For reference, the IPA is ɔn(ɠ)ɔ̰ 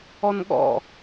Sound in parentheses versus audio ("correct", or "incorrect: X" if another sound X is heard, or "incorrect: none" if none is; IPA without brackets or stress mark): correct